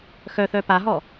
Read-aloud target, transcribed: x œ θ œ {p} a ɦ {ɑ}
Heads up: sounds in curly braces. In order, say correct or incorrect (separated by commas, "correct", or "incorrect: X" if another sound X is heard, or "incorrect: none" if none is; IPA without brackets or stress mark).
correct, incorrect: ɔ